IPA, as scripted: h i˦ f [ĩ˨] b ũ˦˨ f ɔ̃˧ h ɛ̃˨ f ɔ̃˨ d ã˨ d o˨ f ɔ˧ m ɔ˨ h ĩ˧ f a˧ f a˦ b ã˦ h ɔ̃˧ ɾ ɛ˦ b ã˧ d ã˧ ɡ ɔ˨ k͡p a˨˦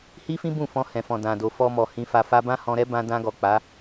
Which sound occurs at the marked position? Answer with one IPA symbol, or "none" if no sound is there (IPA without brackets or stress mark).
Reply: ĩ˦